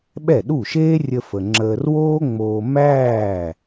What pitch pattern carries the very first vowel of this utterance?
falling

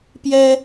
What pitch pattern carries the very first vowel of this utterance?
high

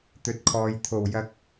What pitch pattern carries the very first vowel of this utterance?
low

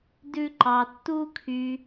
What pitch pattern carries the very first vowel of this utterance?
high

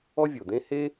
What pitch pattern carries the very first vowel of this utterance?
high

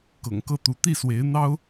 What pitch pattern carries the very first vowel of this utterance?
low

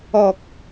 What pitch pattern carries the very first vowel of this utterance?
low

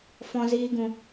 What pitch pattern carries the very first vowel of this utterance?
high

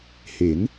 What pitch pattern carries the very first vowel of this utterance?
rising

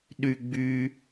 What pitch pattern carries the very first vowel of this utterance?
high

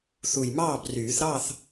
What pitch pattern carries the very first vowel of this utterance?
low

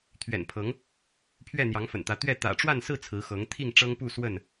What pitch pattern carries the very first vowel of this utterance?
low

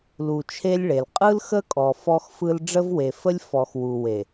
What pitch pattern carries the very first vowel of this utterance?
low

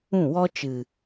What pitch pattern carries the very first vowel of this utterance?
falling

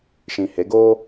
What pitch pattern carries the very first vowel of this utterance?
low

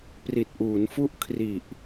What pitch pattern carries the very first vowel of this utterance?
low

